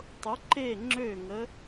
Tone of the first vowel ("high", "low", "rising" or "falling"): rising